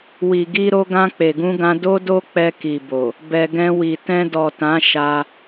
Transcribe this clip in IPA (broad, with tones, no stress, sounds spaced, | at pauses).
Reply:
w i˨ ɡ i˧ ɾ o˧ ɡ ã˧ k͡p e˨ ɡ ũ˧ ɡ ã˧ d o˦ d o˦ k͡p ɛ˧ k i˨ b o˨ | b ɛ˨ ɡ ɛ̃˧ w i˨ t ɛ̃˧ d ɔ˨ t ã˨˦ ʃ a˧